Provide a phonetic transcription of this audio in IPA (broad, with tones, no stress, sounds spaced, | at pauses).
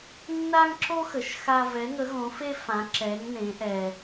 nː a˦ ŋ ǁ o˦ x ə˨˦ ʃ x a˦ v ɛ˨˦ ŋ ə˨˦ ɣ õ˨˦ f e˦ f ã˨˦ ǁ ɛ˨˦ ŋ n ẽ˨˦ ʔ ɛ˦